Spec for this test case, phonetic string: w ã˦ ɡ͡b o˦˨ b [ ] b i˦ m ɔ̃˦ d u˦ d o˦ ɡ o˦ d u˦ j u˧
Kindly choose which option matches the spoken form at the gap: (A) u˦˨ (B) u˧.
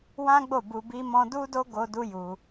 B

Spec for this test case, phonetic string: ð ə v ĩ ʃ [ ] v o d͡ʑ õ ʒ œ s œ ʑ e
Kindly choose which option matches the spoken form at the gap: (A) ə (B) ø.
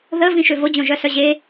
B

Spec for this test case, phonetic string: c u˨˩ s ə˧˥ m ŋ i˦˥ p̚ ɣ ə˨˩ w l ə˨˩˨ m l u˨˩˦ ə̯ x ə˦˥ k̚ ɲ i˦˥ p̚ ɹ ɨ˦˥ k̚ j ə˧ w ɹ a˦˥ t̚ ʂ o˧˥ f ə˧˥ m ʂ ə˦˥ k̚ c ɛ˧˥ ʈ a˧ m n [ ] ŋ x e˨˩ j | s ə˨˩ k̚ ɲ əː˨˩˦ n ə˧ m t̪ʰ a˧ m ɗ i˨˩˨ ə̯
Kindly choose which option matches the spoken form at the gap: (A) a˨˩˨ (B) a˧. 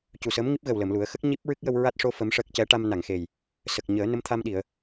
A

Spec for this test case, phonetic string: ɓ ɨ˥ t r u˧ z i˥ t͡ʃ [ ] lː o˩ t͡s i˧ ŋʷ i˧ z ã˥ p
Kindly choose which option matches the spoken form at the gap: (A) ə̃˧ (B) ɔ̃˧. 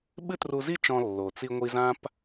B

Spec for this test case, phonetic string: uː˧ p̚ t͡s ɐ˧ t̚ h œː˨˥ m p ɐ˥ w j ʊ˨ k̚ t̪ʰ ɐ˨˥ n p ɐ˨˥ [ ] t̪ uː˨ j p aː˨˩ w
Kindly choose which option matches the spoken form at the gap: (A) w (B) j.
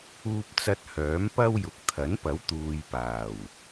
A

